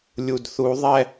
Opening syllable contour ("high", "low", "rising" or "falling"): low